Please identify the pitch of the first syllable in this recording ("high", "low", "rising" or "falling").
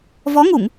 rising